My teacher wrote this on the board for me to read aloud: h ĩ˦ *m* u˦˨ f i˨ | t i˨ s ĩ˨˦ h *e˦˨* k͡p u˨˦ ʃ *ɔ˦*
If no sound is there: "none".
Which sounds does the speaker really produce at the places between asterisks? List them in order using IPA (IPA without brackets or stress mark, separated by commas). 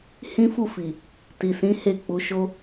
f, e˦˨, o˦